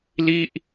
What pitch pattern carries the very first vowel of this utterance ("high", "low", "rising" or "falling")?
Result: falling